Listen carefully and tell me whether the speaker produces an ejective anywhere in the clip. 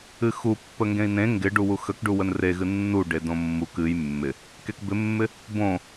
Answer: no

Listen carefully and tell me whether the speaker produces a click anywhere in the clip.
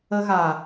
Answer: no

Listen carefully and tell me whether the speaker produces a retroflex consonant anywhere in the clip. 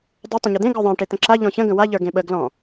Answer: yes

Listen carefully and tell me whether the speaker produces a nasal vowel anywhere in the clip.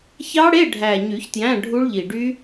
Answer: yes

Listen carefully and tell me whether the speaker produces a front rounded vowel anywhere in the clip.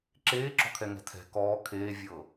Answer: no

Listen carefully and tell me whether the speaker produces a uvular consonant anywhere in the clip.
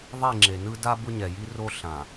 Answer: no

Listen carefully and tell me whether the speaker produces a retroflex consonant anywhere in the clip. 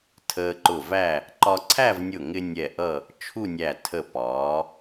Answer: no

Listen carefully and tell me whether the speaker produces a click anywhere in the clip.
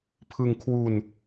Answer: no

